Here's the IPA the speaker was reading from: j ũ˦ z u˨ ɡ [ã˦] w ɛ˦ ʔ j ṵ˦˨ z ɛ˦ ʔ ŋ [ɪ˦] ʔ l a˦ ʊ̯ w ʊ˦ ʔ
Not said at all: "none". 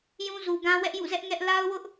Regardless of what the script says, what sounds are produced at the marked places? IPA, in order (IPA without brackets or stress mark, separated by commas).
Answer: ã˦, ɛ˦